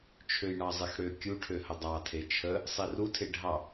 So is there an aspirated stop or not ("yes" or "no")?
yes